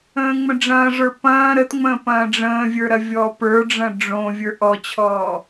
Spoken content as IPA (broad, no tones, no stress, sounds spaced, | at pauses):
ə̃ː ŋ͡m ə̃ ɖ͡ʐ ɐ̃ː ʐ ə˞ p ɐ̃ː ɾ ə t ŋ͡m ə̃ː p ɐ̃ː ɖ͡ʐ ə̃ː vʲ ə˞ ɾ ɐ vʲ ɔː p ə˞ ɖ͡ʐ ɐ̃ ɖ͡ʐ õ vʲ ə˞ ʔ ɔ t͡ɕʰ ɔː